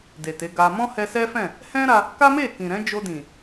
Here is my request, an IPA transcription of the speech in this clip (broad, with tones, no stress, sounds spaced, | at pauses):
d e˨ t e˨˦ ɡ a˧ m ɔ̃˦ h ɛ˧ s ɛ˦ f ɛ̃˦˨ | h ɛ̃˦ ɾ a˧ | k a˦ m e˦˨ k ĩ˨ ɾ ɛ̃˨˦ d͡ʒ o˧ d ĩ˨